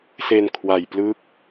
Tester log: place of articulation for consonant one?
alveolar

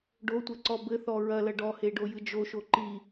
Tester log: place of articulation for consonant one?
retroflex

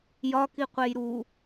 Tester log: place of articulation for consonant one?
palatal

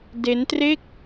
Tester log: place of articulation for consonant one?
alveolar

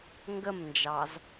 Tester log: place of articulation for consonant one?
velar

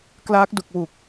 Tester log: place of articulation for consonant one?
velar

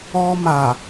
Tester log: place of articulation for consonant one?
labial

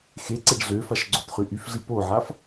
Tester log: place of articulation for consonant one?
velar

